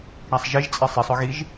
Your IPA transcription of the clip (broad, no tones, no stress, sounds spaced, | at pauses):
ɽ a sˤ ʒ ɪ ʒ t͡sʼ ɪ sˤ ɪ sˤ ʊ ɣ i ʒ